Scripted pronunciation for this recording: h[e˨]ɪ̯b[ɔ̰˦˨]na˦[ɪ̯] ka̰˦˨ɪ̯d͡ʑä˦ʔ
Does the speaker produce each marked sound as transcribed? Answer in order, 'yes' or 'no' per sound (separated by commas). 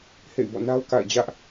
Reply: no, yes, no